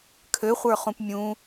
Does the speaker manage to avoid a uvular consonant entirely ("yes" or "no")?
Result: no